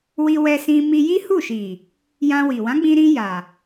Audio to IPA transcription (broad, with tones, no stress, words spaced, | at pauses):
wi˧wɛ˧sĩ˧ mi˧ji˦hu˦˨ʃi˨ | jã˧wi˨ wã˨˦ɡ͡bĩ˧ɾĩ˧ ja˨